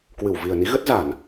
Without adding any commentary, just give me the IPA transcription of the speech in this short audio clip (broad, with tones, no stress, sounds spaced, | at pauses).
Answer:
k w ɨ˧˩ w v i˨˩ ə̯ n i˨˦ ɣ ə˦˥ t̚ z a˧˩˨ n